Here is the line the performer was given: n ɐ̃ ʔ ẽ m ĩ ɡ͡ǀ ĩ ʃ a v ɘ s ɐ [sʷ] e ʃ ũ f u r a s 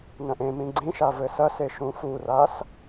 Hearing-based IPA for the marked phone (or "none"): s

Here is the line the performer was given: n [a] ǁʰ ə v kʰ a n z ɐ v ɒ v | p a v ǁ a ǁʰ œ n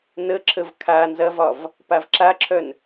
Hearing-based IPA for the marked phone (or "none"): ə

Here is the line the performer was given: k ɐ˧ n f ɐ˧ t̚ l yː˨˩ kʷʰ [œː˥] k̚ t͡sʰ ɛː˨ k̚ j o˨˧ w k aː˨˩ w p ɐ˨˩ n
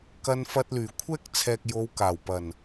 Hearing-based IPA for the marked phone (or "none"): ɛː˥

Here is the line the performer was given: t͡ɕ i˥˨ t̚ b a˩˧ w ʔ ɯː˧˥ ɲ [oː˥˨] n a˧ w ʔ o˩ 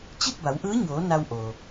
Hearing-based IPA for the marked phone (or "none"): oː˩˧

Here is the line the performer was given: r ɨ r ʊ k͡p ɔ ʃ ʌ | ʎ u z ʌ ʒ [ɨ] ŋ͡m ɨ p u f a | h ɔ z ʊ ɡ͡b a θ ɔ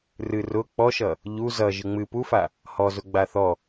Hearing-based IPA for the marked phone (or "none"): ɨ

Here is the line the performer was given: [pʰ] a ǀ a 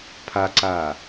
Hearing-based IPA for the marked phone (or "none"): pʰ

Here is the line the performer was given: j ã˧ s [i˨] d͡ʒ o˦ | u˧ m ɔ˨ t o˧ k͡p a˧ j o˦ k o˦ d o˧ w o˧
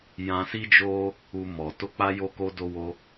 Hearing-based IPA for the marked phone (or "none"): i˦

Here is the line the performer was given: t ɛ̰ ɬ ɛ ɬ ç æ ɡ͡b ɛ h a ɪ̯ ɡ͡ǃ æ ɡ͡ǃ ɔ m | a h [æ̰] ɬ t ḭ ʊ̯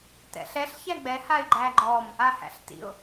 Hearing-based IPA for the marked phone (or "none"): æ̰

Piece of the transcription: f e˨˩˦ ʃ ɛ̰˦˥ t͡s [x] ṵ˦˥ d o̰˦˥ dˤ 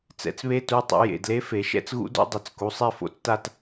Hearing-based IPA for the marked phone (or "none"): ɣ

